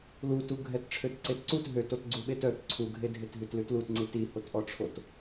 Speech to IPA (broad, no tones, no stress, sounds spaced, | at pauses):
l u t u ɡʱ ɛ t ʈ͡ʂʰ ø t ǀ e t ǀ u t ɦ ø t o t ɡ͡ǀ u ɓ e t œ t ǀʰ u ɡʱ e dʱ e t ɦ ʉ t l ʉ t l u t ŋ͡ǀ i t i h o t ʔ ɔ ʈ͡ʂʰ o t